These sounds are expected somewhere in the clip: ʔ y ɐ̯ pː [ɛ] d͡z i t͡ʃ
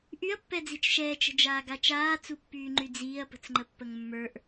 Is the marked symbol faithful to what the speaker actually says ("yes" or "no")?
yes